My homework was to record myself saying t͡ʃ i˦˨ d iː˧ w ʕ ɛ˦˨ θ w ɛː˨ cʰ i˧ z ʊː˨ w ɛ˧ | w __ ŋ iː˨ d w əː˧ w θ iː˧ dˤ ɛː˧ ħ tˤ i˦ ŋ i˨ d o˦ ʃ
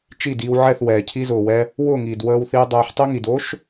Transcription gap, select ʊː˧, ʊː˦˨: ʊː˦˨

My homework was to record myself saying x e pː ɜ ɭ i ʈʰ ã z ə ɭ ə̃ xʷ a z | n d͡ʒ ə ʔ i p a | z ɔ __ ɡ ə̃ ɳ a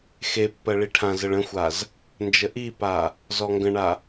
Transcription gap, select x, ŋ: ŋ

